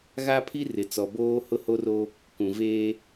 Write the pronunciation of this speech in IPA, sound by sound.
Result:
ɣ a˦ pʰ i˦ r ɪ˨ t͡s ɔ˨ b oː˦ h ʊ˦ h o˦ r o˦ | k ũ˨ v eː˦

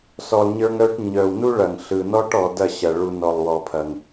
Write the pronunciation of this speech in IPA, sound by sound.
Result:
s ɔ˨ lˠ ɲ ə˞˧ ŋ œ˧ ʈ ɲ œ˨ w n u˦ ɭ ɐ˨ ŋ ɬ ɯ˨ n ɔ˦ ʈ ɔ˨ d ɐ˦˨ ɕ ɐ˨ ɭ u˨ n ɔ˨ lˠ w ɔ˨ pʰ ɐ˨ ŋ

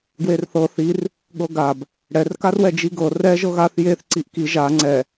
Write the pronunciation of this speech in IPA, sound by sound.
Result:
ɡ w e r θ ɤ θ i r | ɠ ɤ ɡ a b | ɽ ɛ r k a r w ɛ d͡ʒ i ɡ ɤ r ɛ ʒ ɤ ɣ a θ j e θ ǀ i ʔ k i ʒ a ŋ͡ǀ ɛ

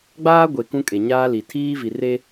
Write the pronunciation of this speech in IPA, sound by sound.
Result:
ɡ͡b aː˦ ɡʷ e˨ k ũ˦ kʼ e˨ ɲ aː˦ l i˨ tʰ iː˦ v i˨ r e˦

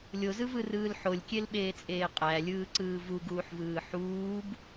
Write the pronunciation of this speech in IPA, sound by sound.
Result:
lʲ o z ɯ v ɯ r ɯː l ħ o lʲ kʲ e l ɓ eː t͡sʼ eː qʼ æ lʲ ɯː ǀ ɯː v u ɡ uː ħ v ɯː ħ uː b

